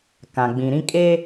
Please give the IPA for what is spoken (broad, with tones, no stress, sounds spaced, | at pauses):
k ã˨ ɡ͡b ĩ˨ ɾ ĩ˦ kʼ e˦